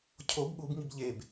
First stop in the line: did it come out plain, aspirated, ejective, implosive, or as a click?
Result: aspirated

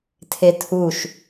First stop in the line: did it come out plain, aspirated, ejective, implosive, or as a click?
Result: aspirated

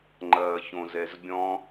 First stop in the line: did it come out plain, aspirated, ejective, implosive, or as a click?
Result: click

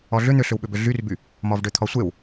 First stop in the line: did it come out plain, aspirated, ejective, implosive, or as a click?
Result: implosive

